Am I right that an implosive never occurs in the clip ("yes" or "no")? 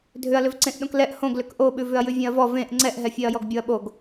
no